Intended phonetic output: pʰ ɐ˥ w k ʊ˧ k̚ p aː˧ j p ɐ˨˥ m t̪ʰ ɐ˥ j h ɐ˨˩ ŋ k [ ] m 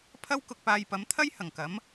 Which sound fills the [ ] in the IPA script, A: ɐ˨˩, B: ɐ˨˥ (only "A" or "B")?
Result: B